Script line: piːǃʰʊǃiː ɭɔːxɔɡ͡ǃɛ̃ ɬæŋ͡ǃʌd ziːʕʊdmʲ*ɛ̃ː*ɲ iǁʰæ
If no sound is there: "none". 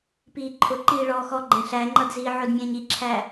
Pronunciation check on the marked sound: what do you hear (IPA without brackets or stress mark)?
ɛ̃ː